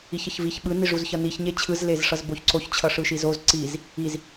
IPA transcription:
i ç ʌ ç v i ç ɓ ɯ n i ʐ u z ç ʌ n i ç ɲ e t͡ɕʰ ɯ z l e z ʂ ʌ z b o ç ǀ o ç t͡ɕʰ ʌ ʂ ɯ ʃ i z o z ǀ i z | i z

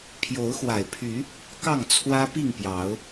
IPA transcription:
pʰ j o˨˦ ʊ̯ x w a˨˩ ɪ̯ pʰ y˨˦ | k ɑ˥˨ ŋ t͡sʰ w ä˦ p i˥˨ ŋ p j ɑ˨˦ ʊ̯

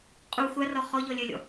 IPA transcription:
qʼ u xʷ a r ɔ χ ɔ ʎ ɔ lʲ œ lʲ ɔ̰

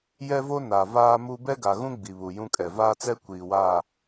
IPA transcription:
j ɛ˦ v o˦ n a˨ v aː˦ m u˦ b ɛ˦ ɡ a˨ ɣ ũ˦ ɡ͡b i˨ β u˨ j ũ˦ kʼ ɛ˨ v aː˦ t͡s ɛ˦ kʷ iː˨ w aː˦˨

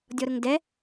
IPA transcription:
dʲ ɔ ɾ ʊ ŋ d ɛ

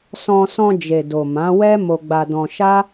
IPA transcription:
s ɔ̃˧ s ɔ̃˧ d͡ʒ e˨ d o˨ m ã˨˦ w ɛ˦ m o˧ ɡ͡b a˧ d ɔ̃˧ ʃ a˦

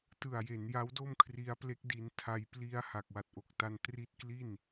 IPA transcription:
t ɯ˨˩ a̯ j e˩˦ n j a˦˥ w d o˥˩ m kʰ r i˧ a̯ p l e˦˥ k̚ d i˧ n tʰ a˧ j p l i˧ a̯ h a˨˩ k̚ w a˨˩ t̚ ʔ o˨˩ k̚ t a˧ n t r i˦˥ t̚ k l i˥˩ n

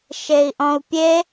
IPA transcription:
ʃ e i̯ ʔ ɔ̃ u̯ pʲ e

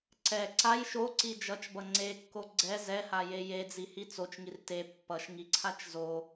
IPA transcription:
ǀ ɛ ǀ a j ʃ o ǀ i d͡ʒ ʌ t͡ʃ b ʌ ŋ͡ǀ e kː o ɡ͡ǀ ɛ z ɛ h a j e j e d͡z i h i t͡s o t͡ʃ ŋ i r t e pː ʌ ʃ ŋ i ǀʰ a t͡ʃ z o

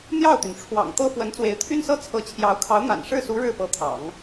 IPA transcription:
n̪ j ɑ˥˩ ʊ̯ t̪ y˩ n ʈ͡ʂʰ w ɑ̰˨˩ ŋ t̪ ɤ˥ f w ə˧˥ n t͡s w e˧˥ ɪ̯ t̪ʰ y˥ n s ɤ˥ t͡sʰ ɤ˧˥ t͡ɕʰ j ɑ˧˥ ʊ̯ kʰ ɑ˧˥ ʊ̯ n̪ a̰˨˩ n ʂ ɻ̩˥˩ s u˧˥ ɻ ɻ̩˥˩ p ɤ˧˥ t̪ʰ ɑ̰˨˩˦ ŋ

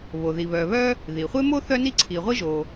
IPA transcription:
β o˩ ð i˩ β œ˩ β œ˥ | ð i˩ χʷ e˥ m o˥ θ œ˥ n i˥ ǀʰ i˩ ʁʷ i˥ ʒ o˩

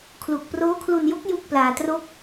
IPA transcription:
kʰ l u˨˩ k̚ p r oː˦˥ kʰ l u˧ n j o˦˥ k̚ j u˥˩ k̚ p l aː˧ t r o˥˩ k̚

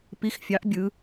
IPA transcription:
p i˧˥ x fʲ ɑ˧˥ ʔ bʲ ɯ˧˥

